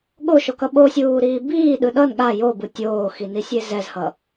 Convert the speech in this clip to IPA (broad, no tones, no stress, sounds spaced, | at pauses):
ɠ o ʃ o k ʌ ɓ o sʲ uː ɾ iː b iː ɗ ɯ ɗ ʌ n ɠ a j o b ɯ tʲ oː x i n i sʲ e z ɛ z h ʌ